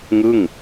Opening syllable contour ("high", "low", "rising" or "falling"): falling